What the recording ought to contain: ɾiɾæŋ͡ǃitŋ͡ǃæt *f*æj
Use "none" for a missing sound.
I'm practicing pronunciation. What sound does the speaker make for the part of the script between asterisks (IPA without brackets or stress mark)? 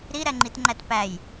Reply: p